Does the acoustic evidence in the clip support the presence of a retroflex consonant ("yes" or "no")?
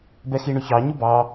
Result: yes